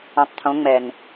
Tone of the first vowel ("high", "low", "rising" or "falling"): low